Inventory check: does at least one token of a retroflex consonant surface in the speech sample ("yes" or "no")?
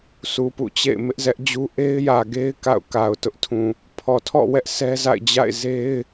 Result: no